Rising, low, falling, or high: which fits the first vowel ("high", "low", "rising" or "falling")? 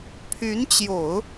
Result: rising